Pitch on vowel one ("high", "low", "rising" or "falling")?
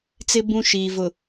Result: high